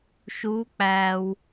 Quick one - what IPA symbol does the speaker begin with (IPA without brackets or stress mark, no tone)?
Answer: ʃ